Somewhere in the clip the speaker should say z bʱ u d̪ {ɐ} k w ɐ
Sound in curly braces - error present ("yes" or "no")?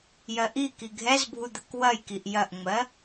no